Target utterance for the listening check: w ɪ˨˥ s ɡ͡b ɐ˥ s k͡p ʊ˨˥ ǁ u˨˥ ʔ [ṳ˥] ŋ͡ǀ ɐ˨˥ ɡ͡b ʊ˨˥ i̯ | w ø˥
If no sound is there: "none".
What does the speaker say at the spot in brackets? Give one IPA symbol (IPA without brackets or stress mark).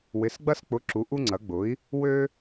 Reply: u˥